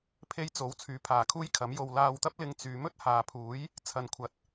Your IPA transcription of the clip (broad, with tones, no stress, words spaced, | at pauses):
pʰe˥jt͡so˨˥w t͡sʰyː˨˥pʰaː˨˩kʰuː˥jkʰɐ˨˥m jo˨wlaː˧wt̪ɐ˥p̚lɪ˧ŋ t͡syː˨˧ mɵ˥t̚haː˨pʰuː˨˥j | t͡sʰɐ˨nkʷʰɐ˨˥t̚